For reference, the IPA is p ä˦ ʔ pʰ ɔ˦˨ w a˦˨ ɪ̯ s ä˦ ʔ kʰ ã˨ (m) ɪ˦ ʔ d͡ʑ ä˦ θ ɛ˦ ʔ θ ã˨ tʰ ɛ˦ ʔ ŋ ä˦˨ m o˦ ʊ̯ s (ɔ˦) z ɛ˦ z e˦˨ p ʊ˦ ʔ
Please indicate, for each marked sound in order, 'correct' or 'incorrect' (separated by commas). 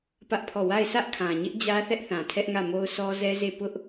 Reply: incorrect, correct